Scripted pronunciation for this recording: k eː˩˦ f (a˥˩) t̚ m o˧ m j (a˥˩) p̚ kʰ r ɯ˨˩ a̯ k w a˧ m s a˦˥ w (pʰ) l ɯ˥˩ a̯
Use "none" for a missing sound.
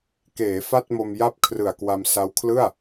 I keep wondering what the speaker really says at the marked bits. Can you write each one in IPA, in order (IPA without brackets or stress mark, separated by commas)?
a˥˩, a˦˥, kʰ